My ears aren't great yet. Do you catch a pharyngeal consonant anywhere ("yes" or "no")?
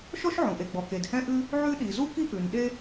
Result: yes